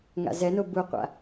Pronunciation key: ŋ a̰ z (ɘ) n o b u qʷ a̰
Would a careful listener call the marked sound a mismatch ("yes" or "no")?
yes